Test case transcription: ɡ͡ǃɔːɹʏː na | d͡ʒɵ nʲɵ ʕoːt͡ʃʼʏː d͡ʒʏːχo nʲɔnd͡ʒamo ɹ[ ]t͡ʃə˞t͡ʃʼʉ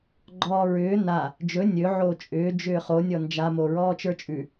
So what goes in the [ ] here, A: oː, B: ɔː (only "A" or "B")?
B